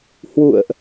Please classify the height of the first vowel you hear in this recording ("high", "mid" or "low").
high